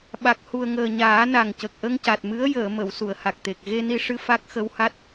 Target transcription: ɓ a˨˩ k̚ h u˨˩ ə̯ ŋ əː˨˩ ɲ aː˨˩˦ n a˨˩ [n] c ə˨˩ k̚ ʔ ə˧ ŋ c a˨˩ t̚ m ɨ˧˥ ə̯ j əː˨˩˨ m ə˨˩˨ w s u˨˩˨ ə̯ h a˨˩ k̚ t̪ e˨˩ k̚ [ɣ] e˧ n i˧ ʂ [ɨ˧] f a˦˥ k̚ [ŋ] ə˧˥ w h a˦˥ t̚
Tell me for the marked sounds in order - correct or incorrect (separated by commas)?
incorrect, correct, correct, incorrect